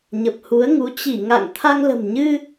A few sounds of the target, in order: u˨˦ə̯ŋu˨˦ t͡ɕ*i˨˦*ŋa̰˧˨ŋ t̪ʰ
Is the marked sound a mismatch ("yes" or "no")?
yes